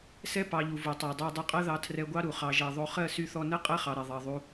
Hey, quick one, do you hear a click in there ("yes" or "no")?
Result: no